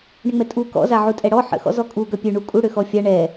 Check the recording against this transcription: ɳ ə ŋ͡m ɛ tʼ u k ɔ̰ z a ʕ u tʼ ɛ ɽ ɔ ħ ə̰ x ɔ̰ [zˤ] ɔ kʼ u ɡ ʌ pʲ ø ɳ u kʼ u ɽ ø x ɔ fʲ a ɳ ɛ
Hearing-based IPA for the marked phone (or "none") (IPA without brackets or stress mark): z